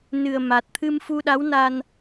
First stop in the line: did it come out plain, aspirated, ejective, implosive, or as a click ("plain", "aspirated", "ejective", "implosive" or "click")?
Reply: plain